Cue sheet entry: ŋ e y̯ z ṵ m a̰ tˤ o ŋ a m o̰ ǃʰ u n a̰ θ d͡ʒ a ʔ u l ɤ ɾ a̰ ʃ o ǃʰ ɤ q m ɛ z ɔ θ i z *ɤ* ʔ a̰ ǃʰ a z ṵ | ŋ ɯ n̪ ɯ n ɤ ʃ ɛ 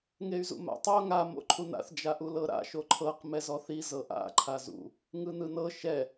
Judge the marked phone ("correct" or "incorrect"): correct